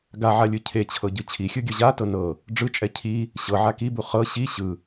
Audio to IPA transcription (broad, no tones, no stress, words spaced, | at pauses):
ɡaʕalʲɯ cʰet͡ɕʰɤɟɯ t͡ɕʰixʲɯɡʲɤ ʑatɤ nɤ | ɖ͡ʐɯt͡ʃʼɛ cʰi | ɕɤʕa kibu χɤ ɕi ɕɯ